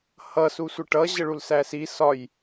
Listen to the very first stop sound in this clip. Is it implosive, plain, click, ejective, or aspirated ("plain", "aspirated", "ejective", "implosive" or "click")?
plain